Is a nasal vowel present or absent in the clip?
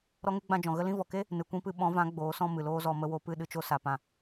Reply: present